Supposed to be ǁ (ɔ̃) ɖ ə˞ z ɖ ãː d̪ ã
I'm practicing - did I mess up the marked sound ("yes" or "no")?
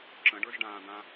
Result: yes